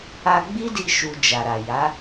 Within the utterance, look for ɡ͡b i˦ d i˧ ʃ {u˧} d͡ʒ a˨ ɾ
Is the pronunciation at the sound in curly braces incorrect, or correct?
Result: correct